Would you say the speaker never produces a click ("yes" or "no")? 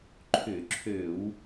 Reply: no